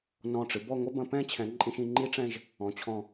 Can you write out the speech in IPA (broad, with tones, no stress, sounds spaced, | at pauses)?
n ɔ̃˧˩ ʈ͡ʂ ɨ˩˧ b ɔ˥˧ ŋʷ ɐ˥ b ɐ̃˧ p ɛ̃˥ t͡ɕʰ ɛ̃˩˧ ǃʼ ĩ˧ ʃ ĩ˩˧ ŋ͡ǃ i˥ ʈ͡ʂ ɛ̃˥˧ ʒ | ɔ̃˩˧ t͡ɕʰ ɔ̃˧˩